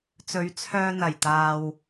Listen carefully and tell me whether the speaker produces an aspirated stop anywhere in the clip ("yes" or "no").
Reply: yes